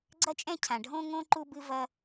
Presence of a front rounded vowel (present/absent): absent